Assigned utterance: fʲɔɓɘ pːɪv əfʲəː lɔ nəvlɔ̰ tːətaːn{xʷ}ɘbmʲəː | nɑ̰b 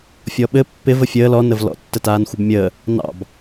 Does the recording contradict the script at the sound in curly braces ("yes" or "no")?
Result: no